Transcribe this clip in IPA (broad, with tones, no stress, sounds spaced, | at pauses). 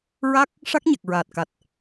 ɹ a˦˥ k̚ | ʂ a˦˥ k̚ ɲ ɛ˨˩ k̚ ɹ aː˨˩ t̚ k a˨˩ t̚